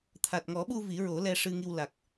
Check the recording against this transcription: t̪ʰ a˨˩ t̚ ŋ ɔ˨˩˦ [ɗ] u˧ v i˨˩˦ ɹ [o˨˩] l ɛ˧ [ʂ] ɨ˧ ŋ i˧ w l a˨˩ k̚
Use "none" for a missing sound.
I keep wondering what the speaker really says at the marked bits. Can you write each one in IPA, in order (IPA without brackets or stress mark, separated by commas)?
ɓ, o˨˩˦, ʂ